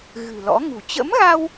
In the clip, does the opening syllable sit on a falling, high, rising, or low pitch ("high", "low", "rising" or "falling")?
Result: low